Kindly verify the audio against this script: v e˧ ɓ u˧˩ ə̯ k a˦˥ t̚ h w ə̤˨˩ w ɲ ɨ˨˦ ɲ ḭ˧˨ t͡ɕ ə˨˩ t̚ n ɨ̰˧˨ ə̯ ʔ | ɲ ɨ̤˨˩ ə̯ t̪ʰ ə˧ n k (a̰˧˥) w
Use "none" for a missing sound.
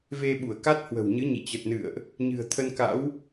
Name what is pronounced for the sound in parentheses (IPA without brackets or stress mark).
a̰˧˥